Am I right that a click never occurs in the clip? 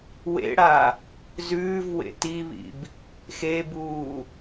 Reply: yes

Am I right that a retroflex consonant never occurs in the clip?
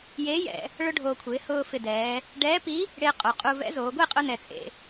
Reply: no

